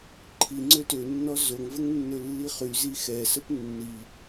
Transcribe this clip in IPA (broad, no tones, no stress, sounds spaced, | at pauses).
ǃʰ i ŋ͡ǀ ø t ø nː ɔ z o ŋ v ə ŋ nː ø lː i χ y z i x ɛ s ə p nː i